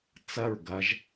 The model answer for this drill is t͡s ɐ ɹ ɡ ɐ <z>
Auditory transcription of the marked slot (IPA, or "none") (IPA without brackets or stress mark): ʒ